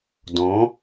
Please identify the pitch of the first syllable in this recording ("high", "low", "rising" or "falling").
rising